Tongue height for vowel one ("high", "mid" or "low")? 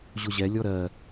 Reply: high